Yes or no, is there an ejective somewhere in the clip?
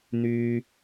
no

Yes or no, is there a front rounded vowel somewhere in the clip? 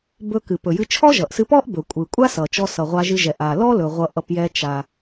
no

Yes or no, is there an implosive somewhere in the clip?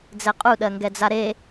yes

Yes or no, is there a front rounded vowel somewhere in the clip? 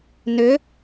yes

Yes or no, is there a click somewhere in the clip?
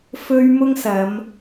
no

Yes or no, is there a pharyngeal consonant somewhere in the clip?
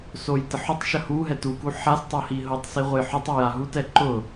yes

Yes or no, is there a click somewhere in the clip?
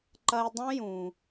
yes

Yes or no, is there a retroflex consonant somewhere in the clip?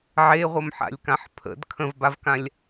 no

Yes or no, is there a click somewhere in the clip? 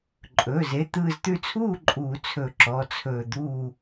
yes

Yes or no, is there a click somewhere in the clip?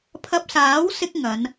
no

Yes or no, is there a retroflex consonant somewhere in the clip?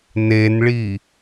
yes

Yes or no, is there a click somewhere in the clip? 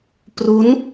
no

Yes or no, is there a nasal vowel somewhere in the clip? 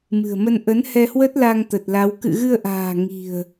no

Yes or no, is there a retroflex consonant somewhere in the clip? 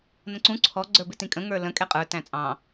no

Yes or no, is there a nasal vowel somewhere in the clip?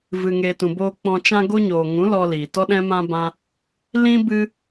yes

